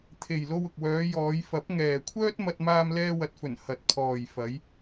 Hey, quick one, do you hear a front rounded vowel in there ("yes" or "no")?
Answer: yes